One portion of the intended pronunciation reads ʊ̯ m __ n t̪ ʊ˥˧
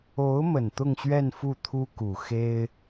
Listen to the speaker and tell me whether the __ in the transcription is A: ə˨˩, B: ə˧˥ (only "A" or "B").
A